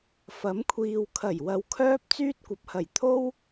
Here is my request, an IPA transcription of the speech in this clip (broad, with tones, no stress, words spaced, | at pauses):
fɐ˨˥mkʷʰiː˨w kʰɐ˨˩jwɐ˨wkʰœː˧p̚ t͡syː˥t̚kʷɐ˨p̚hɐ˨˩jt̪ʰo˥w